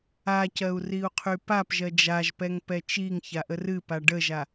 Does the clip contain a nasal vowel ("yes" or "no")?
no